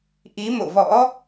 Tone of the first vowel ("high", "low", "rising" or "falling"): rising